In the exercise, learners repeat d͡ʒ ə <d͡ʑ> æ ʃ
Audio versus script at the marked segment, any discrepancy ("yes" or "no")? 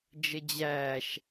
no